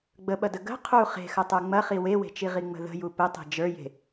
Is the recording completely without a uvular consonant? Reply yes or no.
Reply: no